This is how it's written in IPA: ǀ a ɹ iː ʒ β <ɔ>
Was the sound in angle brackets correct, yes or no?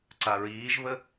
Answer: no